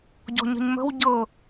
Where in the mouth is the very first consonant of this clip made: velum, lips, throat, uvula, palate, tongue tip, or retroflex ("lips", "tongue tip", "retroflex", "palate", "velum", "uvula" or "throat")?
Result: palate